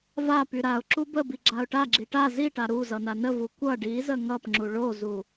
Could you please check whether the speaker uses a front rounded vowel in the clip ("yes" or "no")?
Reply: yes